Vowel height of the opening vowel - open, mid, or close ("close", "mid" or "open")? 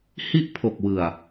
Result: close